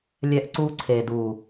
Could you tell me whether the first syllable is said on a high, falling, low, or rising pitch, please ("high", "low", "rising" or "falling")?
high